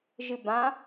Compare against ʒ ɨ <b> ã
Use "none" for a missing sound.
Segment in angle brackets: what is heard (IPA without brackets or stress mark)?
b